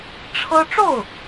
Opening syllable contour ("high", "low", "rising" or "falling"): high